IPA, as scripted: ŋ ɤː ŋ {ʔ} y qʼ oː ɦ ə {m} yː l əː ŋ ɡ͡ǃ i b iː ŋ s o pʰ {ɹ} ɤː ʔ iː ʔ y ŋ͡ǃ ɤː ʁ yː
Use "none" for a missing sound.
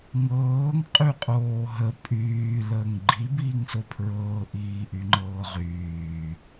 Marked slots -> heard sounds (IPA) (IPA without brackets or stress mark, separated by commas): qʼ, pʼ, ɹ